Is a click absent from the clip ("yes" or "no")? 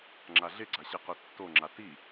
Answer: no